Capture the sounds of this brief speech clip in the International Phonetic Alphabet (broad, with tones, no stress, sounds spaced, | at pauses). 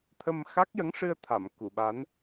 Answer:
t̪ʰ ə˧ m x a˦˥ k̚ j ə˧˥ ŋ ʂ ɨ˧ ə̯ t̪ʰ a˨˩˨ m k u˨˩˨ ɓ a˧˥ n